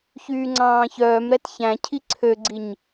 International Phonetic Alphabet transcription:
ç yː ŋ͡ǀ ɑ̃ː ç œː m ɾ ɛ t ç æ̃ cʰ i ǀʰ ø ɡ͡ǀ i ɲ

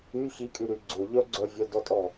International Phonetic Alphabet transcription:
y ç i kʼ y ɾ y ɡ͡ǀ ʊ ʎ œ ɡ͡ǀ œ vʲ œ d ɔ tʼ ɔ

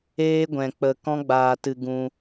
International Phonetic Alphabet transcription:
eː˦ ɡʷ ɛ̃˧ k͡p ə˧ k ɔ̃˦ ɡ͡b aː˧ t ɨ˧ ɡ ũ˧

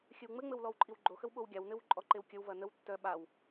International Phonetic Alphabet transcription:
xʲ ɘ w ŋ͡m ɘ ŋ͡m ɘ w l ɔ w ǃʼ i w ɡ͡ǃ o x ə w ɓ o w ɡʲ a w n ɘ w ǃʼ ɔ ǃ e w kʲ ə w v ɐ n ə w tː œ ɓ a w

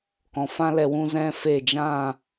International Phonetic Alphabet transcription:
k ɔ̃˨ f ã˦ l ɛ˧ w ũ˦ z ɛ̃˦ f e˦˨ d͡ʒ ã˦˨

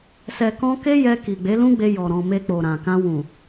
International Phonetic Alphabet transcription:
s ɛ˨ k ɔ̃˧ k e˦ j ɛ˧ k i˨ ɡ͡b e˨˦ l ũ˦ ɡ͡b e˧ j ɔ˨ ɾ ɔ̃˨ m e˧ k͡p o˨ ɾ ã˨ k ã˧ w ũ˨

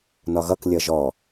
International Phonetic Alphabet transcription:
n ɒ ɣ ʌ k lʲ ʌ ʒ ɔ

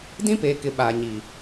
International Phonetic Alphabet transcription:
d ĩ˦ p eː˨ k ɪ˨ ɓ aː˨ ɲ iː˨

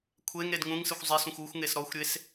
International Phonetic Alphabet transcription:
kʷʰ e ŋ ɾ e d ŋ ũ ŋ s ɨ xʷ zˤ e s ũ xʷ u xʷ ŋ e s ɾ ɔ xʷ ɾʲ e s

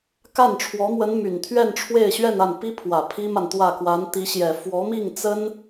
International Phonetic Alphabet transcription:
k a˥˩ n ʈ͡ʂʰ w ɔ˧˥ m w ə˧˥ n m y˨˩ n t̪ʰ ɥ ɛ˥˧ n ʈ͡ʂʰ w e˥˧ ɪ̯ ɕ ɥ ɛ˥˧ n a˥˩ n p i˥ pʰ w ä˨˩ pʰ i˥ m a˨ n t̪ w ä˥˩ k w a˧˥ n t̪ i˧˥ ɕ j ɛ˨˩ f w ɔ˧˥ m i˥˩ ŋ t͡s ə˥ n

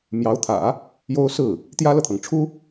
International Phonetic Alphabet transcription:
m j ɑ˧˥ ʊ̯ t̪ʰ ä̰˨˩˦ | j o˥ ʊ̯ s ɹ̩˥˩ | t̪ j ä˥ l ɤ˨ t̪ʰ ɤ˩ ŋ ʈ͡ʂʰ u˥

